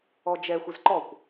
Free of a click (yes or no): no